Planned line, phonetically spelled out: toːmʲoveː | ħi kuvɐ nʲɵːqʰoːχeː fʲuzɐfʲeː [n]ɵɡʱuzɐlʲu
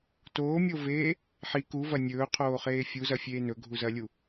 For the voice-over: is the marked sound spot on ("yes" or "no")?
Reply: yes